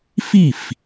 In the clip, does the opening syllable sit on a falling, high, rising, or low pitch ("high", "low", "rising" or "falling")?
falling